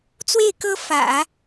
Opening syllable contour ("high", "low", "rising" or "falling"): falling